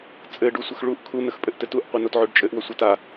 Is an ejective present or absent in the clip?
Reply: present